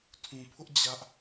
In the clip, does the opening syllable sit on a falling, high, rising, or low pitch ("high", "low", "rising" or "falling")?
low